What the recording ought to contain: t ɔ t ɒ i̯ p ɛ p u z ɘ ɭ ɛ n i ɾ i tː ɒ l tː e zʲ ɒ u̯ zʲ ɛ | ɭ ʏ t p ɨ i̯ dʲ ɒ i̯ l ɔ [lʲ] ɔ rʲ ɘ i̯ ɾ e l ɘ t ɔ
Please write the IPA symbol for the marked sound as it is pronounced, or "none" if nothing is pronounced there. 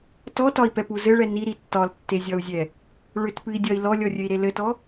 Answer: lʲ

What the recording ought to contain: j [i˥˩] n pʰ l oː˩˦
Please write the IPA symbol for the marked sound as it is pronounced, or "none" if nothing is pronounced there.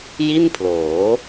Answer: i˥˩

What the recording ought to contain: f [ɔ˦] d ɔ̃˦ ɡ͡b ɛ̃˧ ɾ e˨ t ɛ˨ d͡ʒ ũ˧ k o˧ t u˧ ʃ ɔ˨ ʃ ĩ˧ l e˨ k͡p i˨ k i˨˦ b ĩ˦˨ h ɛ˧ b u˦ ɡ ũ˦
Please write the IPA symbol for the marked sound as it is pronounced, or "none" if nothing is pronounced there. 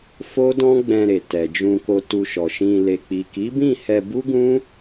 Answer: o˦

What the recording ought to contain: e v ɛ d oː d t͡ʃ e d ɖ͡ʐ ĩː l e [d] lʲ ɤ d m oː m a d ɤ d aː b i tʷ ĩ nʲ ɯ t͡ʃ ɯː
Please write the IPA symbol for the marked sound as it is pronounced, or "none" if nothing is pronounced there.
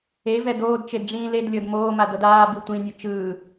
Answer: d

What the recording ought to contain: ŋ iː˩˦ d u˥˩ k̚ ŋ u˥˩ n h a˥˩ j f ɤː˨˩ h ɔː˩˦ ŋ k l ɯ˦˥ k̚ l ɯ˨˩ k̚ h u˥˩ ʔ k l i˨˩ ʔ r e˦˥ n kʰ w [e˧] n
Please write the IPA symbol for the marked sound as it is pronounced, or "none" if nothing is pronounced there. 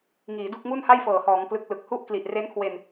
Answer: e˧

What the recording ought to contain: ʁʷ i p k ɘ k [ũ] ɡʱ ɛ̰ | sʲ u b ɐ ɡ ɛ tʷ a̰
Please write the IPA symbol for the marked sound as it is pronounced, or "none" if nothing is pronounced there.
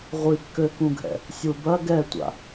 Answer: ũ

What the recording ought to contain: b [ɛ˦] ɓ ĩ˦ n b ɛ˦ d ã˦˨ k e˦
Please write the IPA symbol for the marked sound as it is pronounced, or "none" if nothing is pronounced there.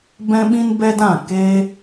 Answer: ɛ̃˦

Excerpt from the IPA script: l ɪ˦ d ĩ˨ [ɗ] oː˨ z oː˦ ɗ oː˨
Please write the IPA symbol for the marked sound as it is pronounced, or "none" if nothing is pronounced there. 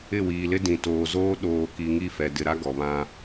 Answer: t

